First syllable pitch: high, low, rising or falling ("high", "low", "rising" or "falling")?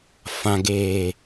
low